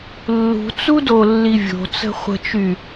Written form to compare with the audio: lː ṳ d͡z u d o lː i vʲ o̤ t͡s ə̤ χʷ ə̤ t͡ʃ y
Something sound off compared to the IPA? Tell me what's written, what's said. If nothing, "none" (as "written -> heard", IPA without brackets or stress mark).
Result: d͡z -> t͡s